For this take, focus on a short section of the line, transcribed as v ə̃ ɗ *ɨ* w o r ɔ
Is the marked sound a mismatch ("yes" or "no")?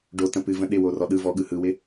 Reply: yes